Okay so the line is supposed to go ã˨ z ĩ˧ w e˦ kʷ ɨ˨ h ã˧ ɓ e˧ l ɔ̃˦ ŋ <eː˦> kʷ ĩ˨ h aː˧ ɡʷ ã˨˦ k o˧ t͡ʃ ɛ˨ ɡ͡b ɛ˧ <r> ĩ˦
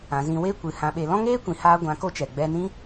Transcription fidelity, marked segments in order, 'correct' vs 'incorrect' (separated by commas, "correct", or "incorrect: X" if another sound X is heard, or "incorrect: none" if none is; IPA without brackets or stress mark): correct, incorrect: n